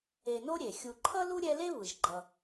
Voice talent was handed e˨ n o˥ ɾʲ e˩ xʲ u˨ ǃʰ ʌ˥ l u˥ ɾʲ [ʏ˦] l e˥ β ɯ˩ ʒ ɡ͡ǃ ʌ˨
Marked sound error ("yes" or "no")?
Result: yes